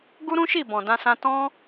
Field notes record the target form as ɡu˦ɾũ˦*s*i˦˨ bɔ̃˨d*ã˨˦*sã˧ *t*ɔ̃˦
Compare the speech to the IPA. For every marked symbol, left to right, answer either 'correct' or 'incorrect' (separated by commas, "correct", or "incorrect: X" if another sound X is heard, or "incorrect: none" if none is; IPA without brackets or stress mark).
incorrect: ʃ, incorrect: ã˧, correct